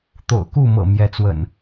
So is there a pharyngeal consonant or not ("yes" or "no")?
no